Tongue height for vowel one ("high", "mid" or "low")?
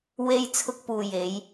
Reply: mid